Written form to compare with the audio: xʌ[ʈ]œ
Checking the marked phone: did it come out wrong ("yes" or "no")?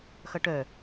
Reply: no